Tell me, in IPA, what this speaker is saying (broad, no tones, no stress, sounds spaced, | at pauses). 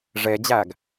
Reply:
ʐ e d͡ʑ æ ɡ